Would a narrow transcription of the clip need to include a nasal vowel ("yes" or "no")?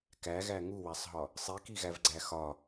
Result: no